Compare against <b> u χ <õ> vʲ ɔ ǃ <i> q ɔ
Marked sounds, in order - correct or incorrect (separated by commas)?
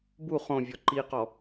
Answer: correct, correct, correct